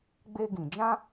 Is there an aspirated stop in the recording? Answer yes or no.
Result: no